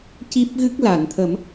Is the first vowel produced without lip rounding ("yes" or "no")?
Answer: yes